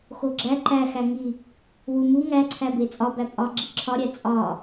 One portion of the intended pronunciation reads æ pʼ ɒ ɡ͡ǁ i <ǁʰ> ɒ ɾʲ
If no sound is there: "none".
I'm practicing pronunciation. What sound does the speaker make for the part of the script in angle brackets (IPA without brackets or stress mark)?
ǁʰ